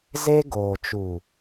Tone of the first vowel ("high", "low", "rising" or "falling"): high